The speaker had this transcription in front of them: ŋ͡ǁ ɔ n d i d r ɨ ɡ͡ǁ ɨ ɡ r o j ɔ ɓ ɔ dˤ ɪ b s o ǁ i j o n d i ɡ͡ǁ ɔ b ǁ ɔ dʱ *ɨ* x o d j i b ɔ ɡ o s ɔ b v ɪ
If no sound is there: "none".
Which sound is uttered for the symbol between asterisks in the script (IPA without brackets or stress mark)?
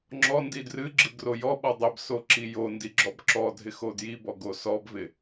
ɪ